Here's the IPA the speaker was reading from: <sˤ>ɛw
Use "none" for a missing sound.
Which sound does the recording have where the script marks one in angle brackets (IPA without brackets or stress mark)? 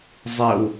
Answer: zˤ